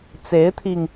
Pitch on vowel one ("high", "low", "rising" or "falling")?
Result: rising